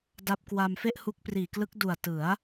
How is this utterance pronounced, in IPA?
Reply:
d a˦˥ p̚ k w a˧ m f e˥˩ ʔ h u˦˥ k̚ p r iː˨˩ k l ɯ˦˥ k̚ d u˨˩ a̯ t ɯ˩˦ a̯

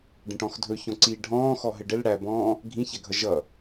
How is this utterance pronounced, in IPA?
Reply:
ɖ ə̃ ʈ ɔ̃ x dʱ ɵ ç ɔ̃ ǀ iː ɖʱ ɔ̃ː x ɔ ɦ ɘ ɖ ɘ l ɽ æ b ɔ̃ː | ɡʱ ĩ ç æ ɡʱ ʌ ʒ ʌ

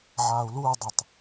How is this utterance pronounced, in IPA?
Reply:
ʕ aː u̯ l uː dˤ ə tˤ

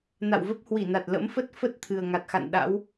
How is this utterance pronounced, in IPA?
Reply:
n a̰˧˨ w v ə˦˥ p̚ h w i˧˩ n a˨˩ t̚ l ə̰˧˥ m f ə˦˥ t̚ f ə˦˥ t̚ t̪ʰ ɨ˨˩ ə̯ ŋ a˨˩ t̚ x a̰˧˨ n ɗ a̰˧˥ w

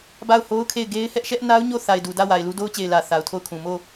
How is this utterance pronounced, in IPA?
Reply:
b a˦˨ ʊ̯ h o˦ ʊ̯ kʰ e˦˨ ɪ̯ ɡ e˦ ɪ̯ h ɛ˦ ʔ ʃ ɛ˦ ʔ n a˦ ʊ̯ ɲ o˦˨ θ a˨ ɪ̯ d u˨ d ä˦˨ w a˨ ɪ̯ l u˦ d o˦ ʊ̯ t͡ɕ e˨ ɪ̯ l ä˨ θ a˨ ʊ̯ tʰ o˦˨ ʊ̯ kʰ ũ˨ m o˦˨

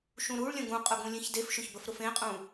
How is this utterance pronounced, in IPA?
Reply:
ʃ ũ ɾ u ɭ lʲ ə̃ ɡ ũ qʼ ʊ ɡ ũ lʲ ẽ ç d e f ʃ ʊ ç b ə f ɾ ʊ f ẽ qʼ ũ

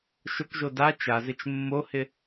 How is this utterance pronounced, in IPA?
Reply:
ʃ ʊ k ʒ o d a t͡ʃ a z ɪ t͡ʃ mː o h ɪ

